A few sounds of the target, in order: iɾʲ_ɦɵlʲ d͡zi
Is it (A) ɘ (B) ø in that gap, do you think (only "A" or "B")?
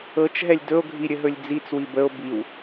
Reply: A